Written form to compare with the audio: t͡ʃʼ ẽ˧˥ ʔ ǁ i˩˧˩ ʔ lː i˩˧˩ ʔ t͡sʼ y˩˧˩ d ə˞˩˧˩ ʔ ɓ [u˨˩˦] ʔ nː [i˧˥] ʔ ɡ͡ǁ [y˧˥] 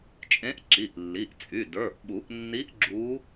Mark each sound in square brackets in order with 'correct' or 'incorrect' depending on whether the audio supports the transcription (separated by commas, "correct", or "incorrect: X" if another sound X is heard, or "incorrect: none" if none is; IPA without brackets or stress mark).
correct, correct, incorrect: u˧˥